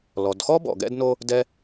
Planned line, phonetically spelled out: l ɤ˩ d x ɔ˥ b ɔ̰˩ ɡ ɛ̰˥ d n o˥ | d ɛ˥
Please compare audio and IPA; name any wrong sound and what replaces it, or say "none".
ɤ˩ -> ɔ˩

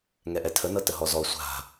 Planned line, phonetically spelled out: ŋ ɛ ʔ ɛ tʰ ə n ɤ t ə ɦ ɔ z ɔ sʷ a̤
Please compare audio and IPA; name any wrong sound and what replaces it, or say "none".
none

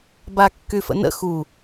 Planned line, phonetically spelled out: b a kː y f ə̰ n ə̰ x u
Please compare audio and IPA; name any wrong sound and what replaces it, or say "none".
none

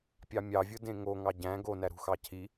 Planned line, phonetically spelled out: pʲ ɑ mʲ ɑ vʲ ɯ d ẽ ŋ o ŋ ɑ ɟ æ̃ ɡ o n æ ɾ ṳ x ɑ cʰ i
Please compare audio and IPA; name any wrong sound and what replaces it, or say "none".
none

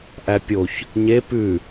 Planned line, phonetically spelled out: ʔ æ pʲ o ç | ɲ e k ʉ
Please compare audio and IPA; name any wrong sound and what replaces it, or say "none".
k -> p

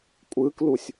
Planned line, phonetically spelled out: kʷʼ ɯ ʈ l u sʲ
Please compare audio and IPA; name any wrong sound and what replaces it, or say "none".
ʈ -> k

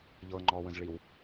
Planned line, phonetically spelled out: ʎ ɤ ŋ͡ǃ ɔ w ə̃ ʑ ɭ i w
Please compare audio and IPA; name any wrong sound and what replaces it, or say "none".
ʑ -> z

